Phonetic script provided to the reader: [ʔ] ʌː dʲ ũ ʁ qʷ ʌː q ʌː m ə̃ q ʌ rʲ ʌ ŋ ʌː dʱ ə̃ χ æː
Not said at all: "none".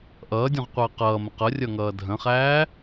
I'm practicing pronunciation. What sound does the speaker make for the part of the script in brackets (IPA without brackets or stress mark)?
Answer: ʔ